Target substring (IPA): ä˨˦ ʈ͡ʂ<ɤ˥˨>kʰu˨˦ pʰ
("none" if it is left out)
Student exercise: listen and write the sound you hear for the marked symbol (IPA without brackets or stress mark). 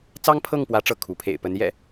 ɤ˥˨